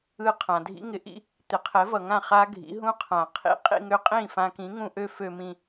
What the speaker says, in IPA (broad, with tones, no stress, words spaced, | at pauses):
ɯ˧ qʰã˩dʱḭ˥ŋɪ˩˥ʔḭ˥ | t̪ɪ˩˥qʰɛ˩˥vʌ˩ŋã˥˩ χa˥ɡʱḭ˩˥ɦũ˥ qʰã˩qʰḭ˧ qʼḭ˧ŋø˧qʼĩ˥˩ fã˧kĩ˩˥ ŋũ˧ʔø˥ fø˧mĩ˧